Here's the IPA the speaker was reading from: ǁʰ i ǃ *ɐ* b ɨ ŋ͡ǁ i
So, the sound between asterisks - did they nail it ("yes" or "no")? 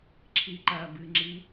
yes